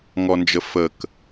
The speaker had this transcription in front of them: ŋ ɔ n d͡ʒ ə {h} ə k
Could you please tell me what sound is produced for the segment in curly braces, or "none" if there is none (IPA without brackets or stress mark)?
f